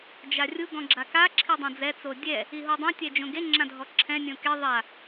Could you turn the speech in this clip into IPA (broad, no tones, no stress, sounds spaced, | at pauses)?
d͡ʒ a rʲ u ɡ ɔ̃ ɡ͡ǁ a k a ǁʰ i dˤ õ d͡z ɛ t͡s o dʲ ɛ | i ɦ o dˤ õ tʲ ɛ d͡ʒ õ ɡ e ŋ͡ǁ ã dʱ ɔ ǁʰ ɛ̃ nʲ õ k e ðˤ a